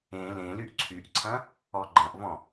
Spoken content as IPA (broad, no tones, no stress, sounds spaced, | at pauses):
ẽ l ẽ l y ʔ ǀʰ y ʔ ǀʰ ɐ̃ | ɔ ɡ͡ǃ ɐ̃ ʔ v ɔ̃